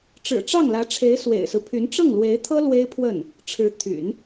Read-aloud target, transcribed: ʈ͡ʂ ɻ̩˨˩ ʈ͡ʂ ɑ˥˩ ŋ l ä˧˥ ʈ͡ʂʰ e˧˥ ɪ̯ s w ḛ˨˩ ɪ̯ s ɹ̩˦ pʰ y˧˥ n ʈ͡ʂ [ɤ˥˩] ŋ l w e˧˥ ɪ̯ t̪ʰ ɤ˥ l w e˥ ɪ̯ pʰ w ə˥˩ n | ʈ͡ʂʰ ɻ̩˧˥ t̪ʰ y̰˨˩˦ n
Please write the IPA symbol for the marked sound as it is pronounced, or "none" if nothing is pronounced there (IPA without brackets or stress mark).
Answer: ɤ˥˩